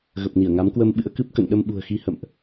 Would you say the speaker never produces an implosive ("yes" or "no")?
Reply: no